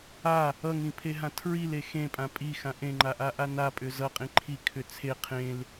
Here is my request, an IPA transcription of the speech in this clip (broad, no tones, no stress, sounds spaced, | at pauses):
a | ʌ ŋ ĩ pʰ e ɦ ã tʰ ɹ i l e x ẽ pʼ ã pʼ i x ã ʔ ẽ ŋ͡ǃ a ʔ a ʔ a n a pʼ ʏ z ʌ qʼ ĩ ǃʰ i kʰ ʏ t͡sʰ e qʰ ẽ l